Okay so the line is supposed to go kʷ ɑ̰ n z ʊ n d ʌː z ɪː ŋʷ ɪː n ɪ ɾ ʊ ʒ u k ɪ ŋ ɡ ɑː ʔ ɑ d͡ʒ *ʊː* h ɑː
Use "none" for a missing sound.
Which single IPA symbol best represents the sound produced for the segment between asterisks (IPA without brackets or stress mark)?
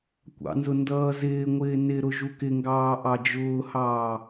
ʊː